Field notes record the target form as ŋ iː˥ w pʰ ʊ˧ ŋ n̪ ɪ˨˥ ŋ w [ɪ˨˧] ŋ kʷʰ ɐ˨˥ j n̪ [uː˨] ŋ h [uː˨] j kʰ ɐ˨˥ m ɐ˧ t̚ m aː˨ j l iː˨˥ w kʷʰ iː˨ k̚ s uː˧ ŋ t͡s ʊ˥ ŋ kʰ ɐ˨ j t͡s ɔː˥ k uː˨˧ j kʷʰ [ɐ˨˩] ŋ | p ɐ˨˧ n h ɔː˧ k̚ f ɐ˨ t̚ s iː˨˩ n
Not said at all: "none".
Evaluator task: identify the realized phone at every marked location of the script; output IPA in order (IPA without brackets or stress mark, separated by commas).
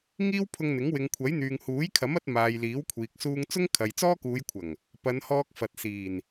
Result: ɪ˨, yː˨, uː˨˥, ɐ˨˩